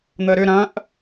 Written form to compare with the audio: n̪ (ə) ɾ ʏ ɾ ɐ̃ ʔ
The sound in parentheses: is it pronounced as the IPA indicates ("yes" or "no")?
yes